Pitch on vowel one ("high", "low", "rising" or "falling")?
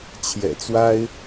low